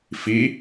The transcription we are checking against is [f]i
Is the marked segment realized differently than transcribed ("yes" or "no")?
no